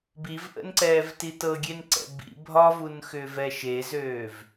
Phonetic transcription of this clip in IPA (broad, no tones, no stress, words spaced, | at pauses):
bivʔə̰nǀɛːv titɤɡʲen ǀɛ̰bḭ bʱɒvunxʏːv ɛʃezøːv